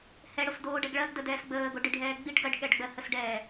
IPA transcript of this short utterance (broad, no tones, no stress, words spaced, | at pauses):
hɛɽosdoːɖɛɡ ɭɜɡdədɛːs ɡ͡bəːɡoɖiɖʱɛː ɡ͡biɖ ɡɜɖɠɛɖɡ͡bɜ həsɖɛː